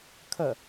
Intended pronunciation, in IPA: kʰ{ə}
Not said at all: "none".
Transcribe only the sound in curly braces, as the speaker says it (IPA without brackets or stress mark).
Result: ə